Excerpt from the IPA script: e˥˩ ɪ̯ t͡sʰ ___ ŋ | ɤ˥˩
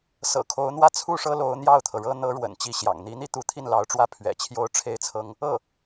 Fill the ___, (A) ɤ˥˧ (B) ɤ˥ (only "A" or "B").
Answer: B